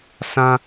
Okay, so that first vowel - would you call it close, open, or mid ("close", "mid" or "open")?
open